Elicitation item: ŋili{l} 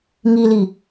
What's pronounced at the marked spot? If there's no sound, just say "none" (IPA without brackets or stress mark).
none